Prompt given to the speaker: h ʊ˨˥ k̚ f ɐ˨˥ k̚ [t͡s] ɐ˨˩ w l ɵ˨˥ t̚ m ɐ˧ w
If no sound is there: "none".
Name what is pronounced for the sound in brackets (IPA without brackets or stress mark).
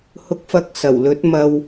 s